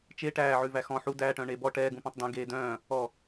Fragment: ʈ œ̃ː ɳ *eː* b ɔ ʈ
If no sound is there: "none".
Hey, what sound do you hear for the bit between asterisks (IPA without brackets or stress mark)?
eː